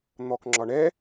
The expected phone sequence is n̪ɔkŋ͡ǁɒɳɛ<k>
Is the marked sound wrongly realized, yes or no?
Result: yes